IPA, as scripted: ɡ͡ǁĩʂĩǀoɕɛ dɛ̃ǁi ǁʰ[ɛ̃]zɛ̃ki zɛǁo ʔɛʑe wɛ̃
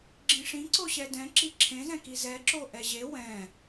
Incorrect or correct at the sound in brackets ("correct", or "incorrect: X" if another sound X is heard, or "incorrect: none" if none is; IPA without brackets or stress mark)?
incorrect: ẽ